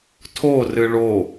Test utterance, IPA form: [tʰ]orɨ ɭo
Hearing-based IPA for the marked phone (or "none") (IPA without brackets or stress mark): tʰ